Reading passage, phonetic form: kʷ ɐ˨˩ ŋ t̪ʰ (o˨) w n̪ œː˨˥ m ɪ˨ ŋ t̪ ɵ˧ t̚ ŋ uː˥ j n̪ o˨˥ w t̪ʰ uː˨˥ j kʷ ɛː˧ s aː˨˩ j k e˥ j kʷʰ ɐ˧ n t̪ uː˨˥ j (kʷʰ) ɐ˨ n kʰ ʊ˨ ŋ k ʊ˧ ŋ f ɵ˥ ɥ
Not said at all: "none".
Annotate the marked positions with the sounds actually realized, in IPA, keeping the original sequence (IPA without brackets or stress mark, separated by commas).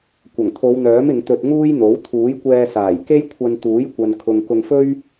o˨˧, kʷ